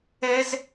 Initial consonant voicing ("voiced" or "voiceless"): voiced